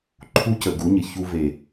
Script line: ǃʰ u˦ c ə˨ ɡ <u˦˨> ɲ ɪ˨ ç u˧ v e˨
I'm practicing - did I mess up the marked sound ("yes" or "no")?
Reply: yes